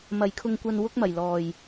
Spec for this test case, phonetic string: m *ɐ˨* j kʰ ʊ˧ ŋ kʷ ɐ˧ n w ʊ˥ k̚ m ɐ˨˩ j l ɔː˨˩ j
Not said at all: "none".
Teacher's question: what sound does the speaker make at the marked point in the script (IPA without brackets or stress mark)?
ɐ˨